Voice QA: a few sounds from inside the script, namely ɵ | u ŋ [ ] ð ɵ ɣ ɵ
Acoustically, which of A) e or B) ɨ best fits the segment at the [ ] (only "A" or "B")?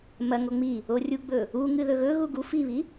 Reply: B